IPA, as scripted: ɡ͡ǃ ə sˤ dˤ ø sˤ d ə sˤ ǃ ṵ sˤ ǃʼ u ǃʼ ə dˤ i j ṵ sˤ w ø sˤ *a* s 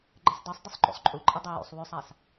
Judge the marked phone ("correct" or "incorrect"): correct